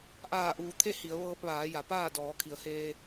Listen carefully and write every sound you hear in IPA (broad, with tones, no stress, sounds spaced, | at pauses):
ʔ aː˧˩ ʔ uː˩˧ t̪ʰ e˥˨ h i˩˧ ə̯ ʋ ɤː˧ p̚ ʋ aː˩˧ j a˩ p aː˥˨ d ɔː˩˧ kʰ i˩˧ ə̯ h eː˧